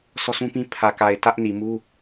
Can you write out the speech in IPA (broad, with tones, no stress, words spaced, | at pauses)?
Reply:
sɔ˦sũ˦pĩ˦ pʰä˨ka˨ɪ̯ tä˦ʔni˨mu˦